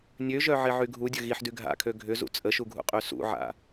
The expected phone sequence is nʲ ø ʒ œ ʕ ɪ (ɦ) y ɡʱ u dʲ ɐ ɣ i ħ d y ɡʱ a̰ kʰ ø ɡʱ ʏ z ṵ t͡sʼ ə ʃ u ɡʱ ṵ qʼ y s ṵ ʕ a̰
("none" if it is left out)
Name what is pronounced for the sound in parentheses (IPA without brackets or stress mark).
ʕ